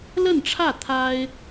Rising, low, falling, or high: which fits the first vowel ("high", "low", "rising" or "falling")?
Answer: falling